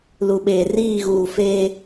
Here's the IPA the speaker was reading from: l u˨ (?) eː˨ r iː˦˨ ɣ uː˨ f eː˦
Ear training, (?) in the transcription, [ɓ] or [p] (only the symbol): ɓ